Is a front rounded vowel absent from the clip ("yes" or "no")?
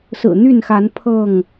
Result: no